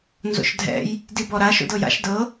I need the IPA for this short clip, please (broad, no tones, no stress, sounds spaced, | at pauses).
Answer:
n z o̰ ʃ dʱ ɛ̰ j | d i b ɔ ɾ a ʃ o̰ d ɤ j a̰ ʃ d ɤ